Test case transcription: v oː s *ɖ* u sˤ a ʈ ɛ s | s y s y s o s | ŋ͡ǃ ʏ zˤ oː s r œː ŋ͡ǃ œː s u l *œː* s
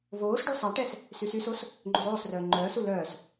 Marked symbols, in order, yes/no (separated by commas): yes, yes